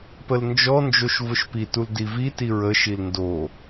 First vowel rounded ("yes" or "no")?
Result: no